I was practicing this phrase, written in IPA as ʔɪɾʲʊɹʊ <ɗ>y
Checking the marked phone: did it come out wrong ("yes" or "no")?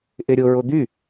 yes